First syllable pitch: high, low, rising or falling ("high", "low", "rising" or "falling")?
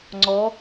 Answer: rising